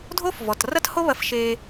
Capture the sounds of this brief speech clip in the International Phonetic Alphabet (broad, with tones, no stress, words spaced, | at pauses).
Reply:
dʱo˥f vɔ˩trɐ˥tho˥ βɐ˧fʃe˧